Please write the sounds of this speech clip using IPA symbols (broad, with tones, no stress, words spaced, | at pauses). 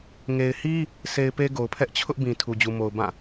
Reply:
ŋe˨ɪ̯hi˦ | sʰe˨ɪ̯ pe˦ɡo˨ʊ̯pʰɛ˦ʔ t͡ɕʰʊ˦ʔ bĩ˨ tʰu˨d͡ʑu˨mo˨ʊ̯ bã˦˨